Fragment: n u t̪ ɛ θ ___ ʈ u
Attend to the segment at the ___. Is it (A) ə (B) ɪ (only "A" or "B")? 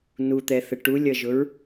A